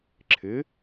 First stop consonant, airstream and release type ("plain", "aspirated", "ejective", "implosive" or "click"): click